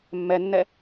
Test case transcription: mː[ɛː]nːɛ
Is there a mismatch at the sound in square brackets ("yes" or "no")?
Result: yes